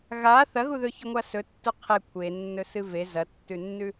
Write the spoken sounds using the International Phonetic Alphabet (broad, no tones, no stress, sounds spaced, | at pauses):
ɣ a θ ɐ ɣ u ð ɵ ç ʉ ŋʷ a s ɵ tː u qʰ e kʷʰ e nː ɵ s ɨ v e z ɐ tː ʉ nː ʉ